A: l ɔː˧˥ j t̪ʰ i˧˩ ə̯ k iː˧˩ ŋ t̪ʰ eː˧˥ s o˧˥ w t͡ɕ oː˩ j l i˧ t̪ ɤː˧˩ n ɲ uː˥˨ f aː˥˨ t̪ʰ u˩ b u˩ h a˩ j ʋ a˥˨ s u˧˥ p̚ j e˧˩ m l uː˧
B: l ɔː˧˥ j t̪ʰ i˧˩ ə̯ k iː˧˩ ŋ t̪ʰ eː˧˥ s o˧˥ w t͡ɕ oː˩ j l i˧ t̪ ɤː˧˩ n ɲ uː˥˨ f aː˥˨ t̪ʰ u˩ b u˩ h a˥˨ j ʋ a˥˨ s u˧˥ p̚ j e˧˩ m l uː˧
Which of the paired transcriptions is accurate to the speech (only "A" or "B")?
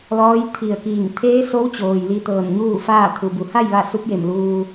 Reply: B